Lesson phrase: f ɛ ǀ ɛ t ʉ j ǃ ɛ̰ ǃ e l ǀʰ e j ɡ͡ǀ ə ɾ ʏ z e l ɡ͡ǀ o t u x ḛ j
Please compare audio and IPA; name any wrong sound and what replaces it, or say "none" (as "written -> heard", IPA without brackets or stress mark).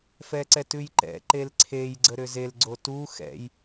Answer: ḛ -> ɛ̰